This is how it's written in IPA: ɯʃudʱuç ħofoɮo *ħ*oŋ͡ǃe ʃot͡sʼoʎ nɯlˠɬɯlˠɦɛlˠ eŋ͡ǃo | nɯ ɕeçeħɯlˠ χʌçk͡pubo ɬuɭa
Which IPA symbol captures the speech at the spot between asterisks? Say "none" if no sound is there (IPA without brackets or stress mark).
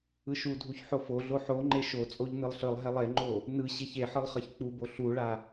ħ